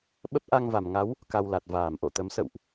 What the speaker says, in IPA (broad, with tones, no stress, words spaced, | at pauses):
ɓə˦˥p̚ʔa˧ŋva˧˩m ŋa˨˦w | ka˧wla˨˩t̚ vaː˧˩mʔo̰˧˨ t̪ə˨˦m sə̰˧˨wʔ